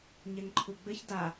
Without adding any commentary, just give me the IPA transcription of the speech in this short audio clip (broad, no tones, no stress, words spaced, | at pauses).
ɲɛŋǃʰuɡ͡bɘç da